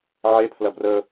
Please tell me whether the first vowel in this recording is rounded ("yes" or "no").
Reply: no